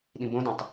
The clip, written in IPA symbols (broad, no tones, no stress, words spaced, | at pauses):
ɗĩbõdĩtˤ